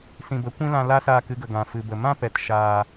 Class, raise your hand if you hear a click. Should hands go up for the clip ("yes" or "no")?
no